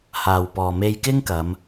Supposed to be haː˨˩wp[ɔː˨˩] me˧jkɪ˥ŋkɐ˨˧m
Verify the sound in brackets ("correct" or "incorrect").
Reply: correct